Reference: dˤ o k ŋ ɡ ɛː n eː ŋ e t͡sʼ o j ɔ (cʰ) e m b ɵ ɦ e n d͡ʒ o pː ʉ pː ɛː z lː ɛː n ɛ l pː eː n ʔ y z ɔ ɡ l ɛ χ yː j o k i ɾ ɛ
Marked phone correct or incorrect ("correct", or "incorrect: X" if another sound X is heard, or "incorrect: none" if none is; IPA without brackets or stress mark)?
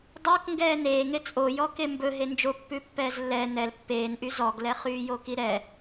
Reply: incorrect: k